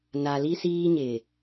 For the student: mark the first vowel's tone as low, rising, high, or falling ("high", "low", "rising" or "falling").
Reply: low